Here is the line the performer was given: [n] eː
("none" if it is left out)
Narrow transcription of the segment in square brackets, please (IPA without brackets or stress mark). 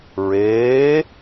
ɹ